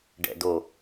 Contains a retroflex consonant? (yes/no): yes